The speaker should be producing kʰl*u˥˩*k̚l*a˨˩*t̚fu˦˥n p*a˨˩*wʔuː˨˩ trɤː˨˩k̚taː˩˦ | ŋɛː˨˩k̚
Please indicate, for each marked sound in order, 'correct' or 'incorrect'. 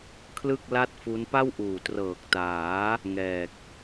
incorrect, incorrect, incorrect

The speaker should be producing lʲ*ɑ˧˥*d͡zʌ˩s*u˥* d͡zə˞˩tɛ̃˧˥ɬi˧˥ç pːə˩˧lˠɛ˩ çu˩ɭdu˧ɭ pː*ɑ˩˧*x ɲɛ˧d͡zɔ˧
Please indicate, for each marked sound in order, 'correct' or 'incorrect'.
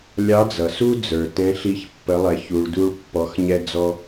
correct, correct, incorrect

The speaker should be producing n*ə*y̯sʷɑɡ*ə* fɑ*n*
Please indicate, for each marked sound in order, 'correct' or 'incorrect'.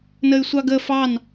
correct, correct, correct

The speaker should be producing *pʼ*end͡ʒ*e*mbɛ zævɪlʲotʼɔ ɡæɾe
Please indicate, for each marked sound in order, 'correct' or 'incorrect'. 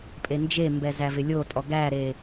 correct, correct

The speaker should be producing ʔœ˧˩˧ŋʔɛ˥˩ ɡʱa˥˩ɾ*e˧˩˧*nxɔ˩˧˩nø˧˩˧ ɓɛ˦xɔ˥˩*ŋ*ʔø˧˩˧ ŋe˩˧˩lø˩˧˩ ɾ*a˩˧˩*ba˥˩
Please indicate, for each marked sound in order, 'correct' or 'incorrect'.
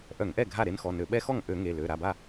incorrect, correct, correct

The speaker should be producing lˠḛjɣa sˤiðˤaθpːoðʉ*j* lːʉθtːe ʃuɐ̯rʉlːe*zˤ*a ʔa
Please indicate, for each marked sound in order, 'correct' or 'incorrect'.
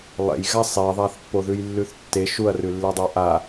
correct, incorrect

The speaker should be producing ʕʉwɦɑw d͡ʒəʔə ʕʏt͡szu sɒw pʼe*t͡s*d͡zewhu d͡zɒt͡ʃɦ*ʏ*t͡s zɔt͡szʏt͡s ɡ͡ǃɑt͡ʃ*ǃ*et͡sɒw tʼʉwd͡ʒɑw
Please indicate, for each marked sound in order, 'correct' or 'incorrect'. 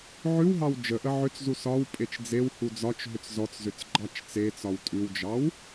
incorrect, correct, incorrect

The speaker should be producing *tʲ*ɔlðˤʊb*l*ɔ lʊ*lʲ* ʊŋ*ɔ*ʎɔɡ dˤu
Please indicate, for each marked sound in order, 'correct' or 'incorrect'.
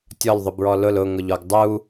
correct, incorrect, incorrect, incorrect

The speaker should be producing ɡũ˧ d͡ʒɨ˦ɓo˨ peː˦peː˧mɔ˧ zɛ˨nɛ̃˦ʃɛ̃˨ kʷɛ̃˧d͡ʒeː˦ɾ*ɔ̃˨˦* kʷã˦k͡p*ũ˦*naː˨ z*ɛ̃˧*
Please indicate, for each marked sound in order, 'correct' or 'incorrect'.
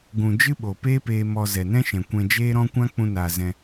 incorrect, incorrect, correct

